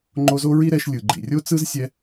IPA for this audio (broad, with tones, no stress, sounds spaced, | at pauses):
ŋ͡ǃ o˦ z o˥ ɹ i˥ ɾ ɛ˦ ʃ lʲ ɯ˨ ɡ͡ǃ ḭ˨ rʲ o˥ t͡s ɯ˥ z sʲ ɛ˦